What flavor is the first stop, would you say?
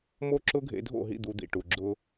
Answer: click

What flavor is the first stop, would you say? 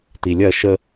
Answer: plain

